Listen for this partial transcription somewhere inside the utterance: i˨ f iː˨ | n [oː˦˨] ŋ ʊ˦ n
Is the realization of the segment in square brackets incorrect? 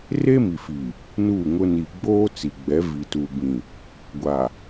yes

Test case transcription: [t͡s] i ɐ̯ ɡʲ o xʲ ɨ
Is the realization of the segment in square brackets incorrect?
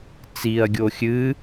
no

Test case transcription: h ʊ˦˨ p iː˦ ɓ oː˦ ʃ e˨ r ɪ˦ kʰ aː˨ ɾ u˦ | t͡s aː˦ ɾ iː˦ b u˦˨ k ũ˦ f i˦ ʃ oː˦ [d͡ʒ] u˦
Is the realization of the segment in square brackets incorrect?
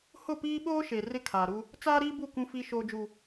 no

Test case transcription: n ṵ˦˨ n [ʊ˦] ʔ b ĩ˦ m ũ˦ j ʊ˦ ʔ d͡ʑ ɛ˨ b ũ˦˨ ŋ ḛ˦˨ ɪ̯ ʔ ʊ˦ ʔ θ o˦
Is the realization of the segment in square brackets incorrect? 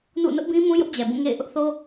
no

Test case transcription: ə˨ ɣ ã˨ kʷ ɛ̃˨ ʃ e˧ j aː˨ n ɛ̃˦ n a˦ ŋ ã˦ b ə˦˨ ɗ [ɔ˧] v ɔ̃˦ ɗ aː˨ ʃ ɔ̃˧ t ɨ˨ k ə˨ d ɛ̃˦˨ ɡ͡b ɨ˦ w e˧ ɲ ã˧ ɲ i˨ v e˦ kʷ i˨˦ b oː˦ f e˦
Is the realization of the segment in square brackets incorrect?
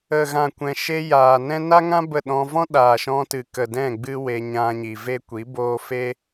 yes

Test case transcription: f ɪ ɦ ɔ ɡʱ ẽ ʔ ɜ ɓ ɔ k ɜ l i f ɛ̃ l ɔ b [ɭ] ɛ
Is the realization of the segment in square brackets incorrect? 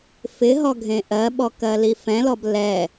yes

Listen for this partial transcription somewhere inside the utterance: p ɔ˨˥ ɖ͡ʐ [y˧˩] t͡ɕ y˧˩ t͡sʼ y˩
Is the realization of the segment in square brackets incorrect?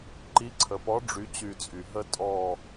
yes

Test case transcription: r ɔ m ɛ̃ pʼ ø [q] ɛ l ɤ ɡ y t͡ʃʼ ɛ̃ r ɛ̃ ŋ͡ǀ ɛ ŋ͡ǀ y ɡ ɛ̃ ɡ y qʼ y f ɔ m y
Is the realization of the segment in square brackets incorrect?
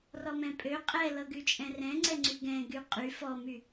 yes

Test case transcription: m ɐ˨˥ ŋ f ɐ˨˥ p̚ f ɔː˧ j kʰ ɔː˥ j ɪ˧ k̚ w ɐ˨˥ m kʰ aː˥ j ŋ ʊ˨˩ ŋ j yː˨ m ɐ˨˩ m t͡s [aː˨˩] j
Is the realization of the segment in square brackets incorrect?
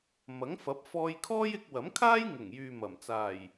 no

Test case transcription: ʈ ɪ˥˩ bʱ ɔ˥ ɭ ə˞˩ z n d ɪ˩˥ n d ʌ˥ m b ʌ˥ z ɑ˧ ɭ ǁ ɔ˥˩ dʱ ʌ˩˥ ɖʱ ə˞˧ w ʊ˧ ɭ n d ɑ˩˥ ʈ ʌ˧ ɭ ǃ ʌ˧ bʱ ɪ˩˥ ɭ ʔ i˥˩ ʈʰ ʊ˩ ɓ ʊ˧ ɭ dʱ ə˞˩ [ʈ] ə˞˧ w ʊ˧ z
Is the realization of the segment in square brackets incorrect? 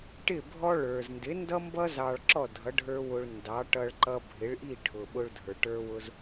no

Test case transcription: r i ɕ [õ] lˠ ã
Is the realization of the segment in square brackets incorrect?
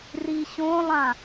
no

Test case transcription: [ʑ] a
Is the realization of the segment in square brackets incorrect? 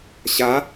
yes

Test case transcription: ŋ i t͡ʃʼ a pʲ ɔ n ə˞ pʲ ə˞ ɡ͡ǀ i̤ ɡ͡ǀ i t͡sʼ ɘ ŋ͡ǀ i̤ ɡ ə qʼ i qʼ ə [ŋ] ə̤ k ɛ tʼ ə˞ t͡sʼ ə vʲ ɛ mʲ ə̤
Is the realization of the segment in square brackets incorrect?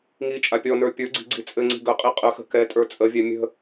yes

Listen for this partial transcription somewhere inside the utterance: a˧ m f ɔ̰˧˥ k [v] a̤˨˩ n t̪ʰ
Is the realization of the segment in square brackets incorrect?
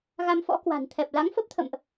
yes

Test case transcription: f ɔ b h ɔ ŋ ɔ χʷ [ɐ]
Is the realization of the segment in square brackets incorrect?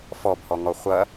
no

